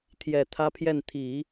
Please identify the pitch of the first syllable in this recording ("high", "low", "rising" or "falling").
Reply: low